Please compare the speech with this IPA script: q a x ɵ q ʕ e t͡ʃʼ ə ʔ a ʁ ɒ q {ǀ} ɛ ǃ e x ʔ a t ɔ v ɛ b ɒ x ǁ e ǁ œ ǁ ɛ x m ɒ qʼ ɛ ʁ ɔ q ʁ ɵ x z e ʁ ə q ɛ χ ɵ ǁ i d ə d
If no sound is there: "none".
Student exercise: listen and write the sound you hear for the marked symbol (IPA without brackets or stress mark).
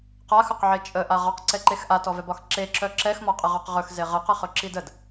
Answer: ǀ